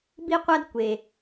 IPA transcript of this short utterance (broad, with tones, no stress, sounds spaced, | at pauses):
b i˥ qʷ a˥ d kʷ e˩